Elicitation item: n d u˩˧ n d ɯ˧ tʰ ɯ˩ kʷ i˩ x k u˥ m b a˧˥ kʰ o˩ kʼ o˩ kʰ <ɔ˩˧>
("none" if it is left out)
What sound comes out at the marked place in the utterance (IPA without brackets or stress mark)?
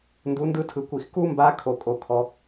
ɔ˩˧